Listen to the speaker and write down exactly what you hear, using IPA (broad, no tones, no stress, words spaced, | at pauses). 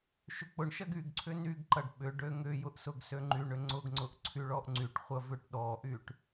ʃʏk͡pʊɳʃɐɡ yɡǀʰʏ nyɡǃɐɖ ɓʏ ɖøŋʏjʊʔ sʊɡsøŋ͡ǃyɳʏ ŋ͡ǀʊɡŋ͡ǀʊʔ ǀʰyɭɔʔŋ͡ǀyʈχʷɐ vʏʈɗɔʔyʈ